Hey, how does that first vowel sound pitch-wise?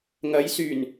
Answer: rising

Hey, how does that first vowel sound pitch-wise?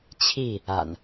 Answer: falling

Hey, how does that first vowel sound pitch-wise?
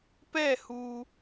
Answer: falling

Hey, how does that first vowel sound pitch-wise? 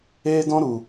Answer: high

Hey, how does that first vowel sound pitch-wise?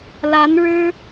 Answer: rising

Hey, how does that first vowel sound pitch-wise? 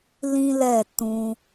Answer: high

